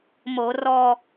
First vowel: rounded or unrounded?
rounded